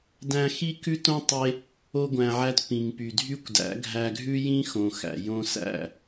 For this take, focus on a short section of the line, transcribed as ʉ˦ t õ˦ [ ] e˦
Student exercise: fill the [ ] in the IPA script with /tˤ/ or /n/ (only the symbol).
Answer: tˤ